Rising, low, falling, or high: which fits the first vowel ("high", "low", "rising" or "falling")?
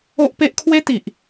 high